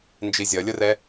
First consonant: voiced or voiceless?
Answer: voiced